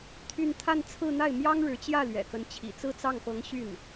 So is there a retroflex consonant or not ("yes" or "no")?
yes